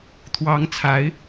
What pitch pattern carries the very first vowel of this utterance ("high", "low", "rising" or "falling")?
rising